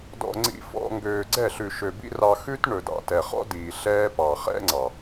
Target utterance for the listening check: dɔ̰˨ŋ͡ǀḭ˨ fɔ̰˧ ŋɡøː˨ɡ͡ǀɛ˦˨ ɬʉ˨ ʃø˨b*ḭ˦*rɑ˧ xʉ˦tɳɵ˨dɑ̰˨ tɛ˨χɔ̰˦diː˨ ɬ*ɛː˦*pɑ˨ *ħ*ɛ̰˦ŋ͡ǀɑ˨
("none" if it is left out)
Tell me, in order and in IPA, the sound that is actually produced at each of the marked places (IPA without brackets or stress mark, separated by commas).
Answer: ḭ˦, ɛː˦, χ